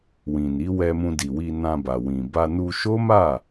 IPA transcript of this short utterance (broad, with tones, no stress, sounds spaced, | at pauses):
w ĩ˨ n i˨˦ w ɛ˧ m ũ˧ d i˨ w i˧ n ã˧ b a˨ w ĩ˨ b a˧ n u˧ ʃ o˦ m a˦˨